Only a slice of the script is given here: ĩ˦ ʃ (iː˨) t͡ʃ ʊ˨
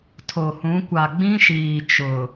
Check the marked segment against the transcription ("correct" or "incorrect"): correct